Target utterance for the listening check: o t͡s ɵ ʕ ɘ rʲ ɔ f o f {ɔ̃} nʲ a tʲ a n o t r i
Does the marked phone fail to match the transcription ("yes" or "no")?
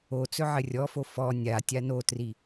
yes